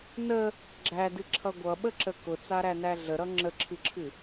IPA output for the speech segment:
n ə | ɡ͡ǁ æ d ɨ ǁʰ ʌ ɡʷ ʌ ɓ ə ǁ ə k ʊ t͡s a ɾ æ n æ ɮ ə ɾ ʌ ŋ͡ǁ ə ǁʰ ɨ ǁʰ ɨ

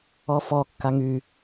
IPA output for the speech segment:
ɔ f ɔ kː a ŋ y

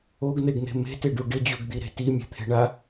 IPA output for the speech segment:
o ɡ n̪ e ɡ n̪ e̤ m e̤ t e ɖ u ɖ ɪ d͡ʑ u ɡ d̪ i ɾ e̤ t i mʲ e̤ t̪ʰ e̤ ɳ a

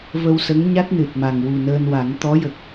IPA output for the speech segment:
v ə˧ w s ə˧˥ ŋ ɲ a˦˥ t̚ n ɨ˨˩ t̚ m a˨˩ ŋ w u˨˩ n əː˧ n w a˨˩˦ ŋ t̪ ɔ˧˥ j ə˨˩ k̚

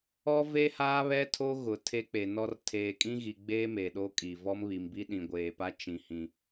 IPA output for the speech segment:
ɔ˦ v e˦ h aː˦ β ɛ˦ tʰ o˦ ɣ ʊ˨ tʰ e˦ k͡p e˨ n ɔ˦ r tʰ eː˨ kʼ ĩ˦ ɣ i˨ ɡ͡b eː˦ m e˨ ɗ o˦ kʼ i˨ v ɔ˦ m β i˨ m b i˦ ɗ ĩ˨ ɡʷ eː˨ p a˦ t͡ʃ ĩ˦ h ĩ˦

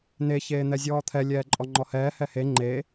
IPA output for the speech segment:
n e ç eː n̪ ɛ zʲ ɔː t̪ʰ ɛ lʲ ɛː ǃʼ ɔ ŋ͡ǃ ɔ h ɛː h ɛ h e ŋ͡ǃ e

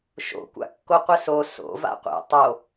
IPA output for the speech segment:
ʃ o̰ kʷ a̰ kː o qʷ ɘ s o s o̰ v a̰ qʷ ɛ̰ tˤ o

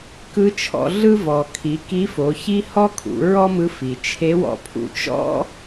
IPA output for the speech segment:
k ɯ˧˥ t͡ʃʰ ɔ̰˧ ɮ ɯ˥ v ɔ˩ kʰ i˩˧ k i˧˥ f o˩˧ ç i˥ h ɔ˥ kʰ ṵ˩˧ ɹ ɔ˥ m ɯ˧ f i˩ t͡ʃʰ e˧˥ w ɔ̰˧ pʰ ṵ˧ t͡ʃ ɔ̰˥

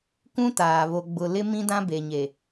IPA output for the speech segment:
kʷ ũ˦ t aː˨ β o˨ ɡ͡b ʊ˨ l ɪ˦ m ĩ˦ d ã˦ b e˨ ɲ e˨

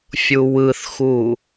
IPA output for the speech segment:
fʲ u w ɯ θ x u

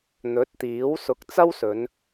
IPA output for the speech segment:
n̪ ɵ˨˥ t̚ t̪ iː˨˥ w s ʊ˨˥ k̚ t͡s ɐ˥ w s ɵ˨˧ n

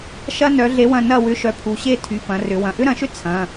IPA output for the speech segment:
ʃ ɐ˥ n œ˨˥ ɮ e˨˥ w ɐ̃˦˨ n ɐ˦˨ w ʏ˨˥ ʃ œ˨˥ pʰ u˩˧˩ ɕ e˦˨ tʰ y˩˧˩ p ɐ̃˩˧ r ʏ˩˧ w ɐ̃˩˧˩ ʔ ʏ˥ ɾ ɐ̃˨˥ ʃ ʏ˥ t͡sʰ ɐ̃˩˧˩

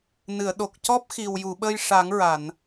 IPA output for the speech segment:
n ɨ˨˩˨ ə̯ ɗ o˨˩ k̚ c ɔ˦˥ p̚ x i˨˩ w j u˨˩˨ ɓ ə˧ j ʂ a˨˩˦ ŋ ɹ a˨˩˨ n

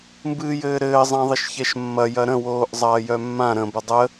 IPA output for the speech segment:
m b ɨː j ɘː ɾ ɘː zˤ ã ðˤ ɘ ʃ ç ɛ ʃ mː ɐ j ɐ ɾ ə̃ w oː ʔ zˤ ɐː j œ mː ã ɾ ə̃ b ə dˤ ə

